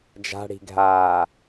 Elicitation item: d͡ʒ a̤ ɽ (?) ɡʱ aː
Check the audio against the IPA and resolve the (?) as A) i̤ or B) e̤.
A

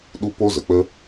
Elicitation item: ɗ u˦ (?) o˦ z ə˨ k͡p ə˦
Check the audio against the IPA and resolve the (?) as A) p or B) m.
A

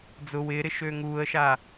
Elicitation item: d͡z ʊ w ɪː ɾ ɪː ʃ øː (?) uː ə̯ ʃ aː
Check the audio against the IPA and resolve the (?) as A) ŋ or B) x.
A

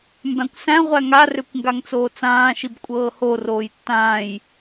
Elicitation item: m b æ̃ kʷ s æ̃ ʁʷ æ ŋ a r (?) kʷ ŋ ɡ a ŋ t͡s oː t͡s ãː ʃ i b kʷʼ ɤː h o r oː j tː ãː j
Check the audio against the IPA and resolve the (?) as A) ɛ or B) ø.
B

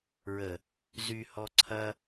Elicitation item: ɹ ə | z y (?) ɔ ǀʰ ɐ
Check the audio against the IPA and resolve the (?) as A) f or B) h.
B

